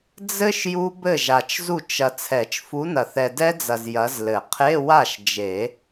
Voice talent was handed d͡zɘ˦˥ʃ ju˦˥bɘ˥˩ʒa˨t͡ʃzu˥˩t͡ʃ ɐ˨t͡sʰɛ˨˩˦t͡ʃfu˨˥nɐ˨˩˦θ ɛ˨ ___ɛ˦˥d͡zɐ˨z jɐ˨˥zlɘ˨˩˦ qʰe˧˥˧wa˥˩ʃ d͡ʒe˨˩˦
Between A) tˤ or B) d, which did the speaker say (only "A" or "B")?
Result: B